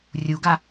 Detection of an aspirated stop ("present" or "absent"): absent